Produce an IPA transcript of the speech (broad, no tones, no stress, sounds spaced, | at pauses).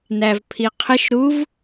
n æ v pʰ i qʰ ɪ ʃ ɾ u v